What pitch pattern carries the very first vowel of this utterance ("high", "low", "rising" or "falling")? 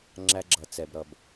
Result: high